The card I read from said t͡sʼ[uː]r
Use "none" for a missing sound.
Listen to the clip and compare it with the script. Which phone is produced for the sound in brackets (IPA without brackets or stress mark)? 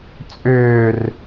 ʏː